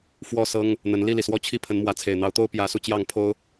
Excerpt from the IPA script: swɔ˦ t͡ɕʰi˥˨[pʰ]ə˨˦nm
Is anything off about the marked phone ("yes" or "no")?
no